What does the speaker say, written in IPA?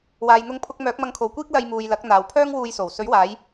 w aː˨ j n̪ ʊ˧ ŋ pʰ ʊ˧ k̚ m œː˨˥ k̚ m ɐ˧ ŋ kʰ o˨˧ w kʷ iː˥ k̚ l ɐ˧ j m uː˨ j l ɐ˨˥ k̚ n̪ aː˨ w pʰ œː˥ ŋ w uː˧ j s o˨˩ w s ɵ˨˥ ɥ w aː˨˧ j

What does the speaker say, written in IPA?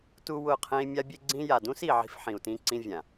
t u˦ w ʊ˦˨ qʰ ẽ˦ i̯ mʲ a˦ bʲ e˦ ɡ͡ǀ ĩ˦ j a˨ d ũ˦ s i˨ ʕ i̤˦ f ħ ĩ˨ u̯ t ĩ˦ ǀ ĩ˦ vʲ ã˨

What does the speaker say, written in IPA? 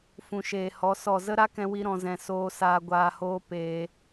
f ũ˨ ʃ eː˨ h ɔ˨˦ s ɔ˦˨ z ə˦ ɾ a˦ k ɛ̃˧ w i˧ ɾ ɔ̃˨ z ɛ̃˨ s oː˧ s aː˧ ɡʷ aː˧ h oː˦ p eː˧

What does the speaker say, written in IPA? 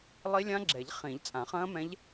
lˠ i˦˥ lʲ ã˦˥ ɡ͡ǁ ɛ˨˩˦ ʎ χ ĩ˨˩˦ ʎ t͡sʼ ã˨˩˦ χ ɐ̃ː˦˥ m ɛ̃˦˥ ʎ

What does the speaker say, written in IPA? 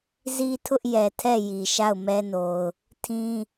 z i˦ tʰ ʊ˦ ʔ j ɛ˨ tʰ ɛ˦˨ j i˨ ʃ a˦˨ ʊ̯ m ɛ˦ n o˨ ʊ̯ | tʰ ĩ˦

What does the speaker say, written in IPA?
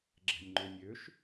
ɡ͡ǁ ɛ̤ nʲ ŋ͡ǃ ø nʲ ø ʃ

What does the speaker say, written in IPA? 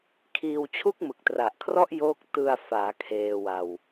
kʰ iː˧ w t͡ɕʰ u˥˩ k̚ m ɯ˨˩ k̚ t r a˨˩ ʔ kʰ r ɔ˥˩ ʔ j oː˦˥ k̚ t ɯ˧ a̯ f aː˩˦ kʰ eː˧ w a˧ w

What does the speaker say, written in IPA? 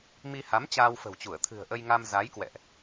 m i˧ h a˨˦ m t͡ɕ aː˧ w f ə̤˨˩ w t͡ɕ u˧˩ ə̯ t̪ʰ ɨ̤˨˩ ə̯ ʔ ə˧ j ŋ a˧ m z a˨˦ j k w ɛ̰˧˨ ʔ

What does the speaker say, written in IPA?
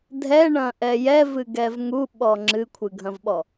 dʱ ɛ ɳ ɐ̃ ʔ ɛ j ɛ v ɨ ɡ ɛ v ŋ u ɓ ɔ ŋ͡ǁ ɨ kʷʰ ɨ ɡʱ ɐ̃ v ɓ ɔ

